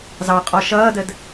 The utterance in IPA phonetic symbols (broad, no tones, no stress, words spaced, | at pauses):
zɑqʼɔ ʃʌːdəd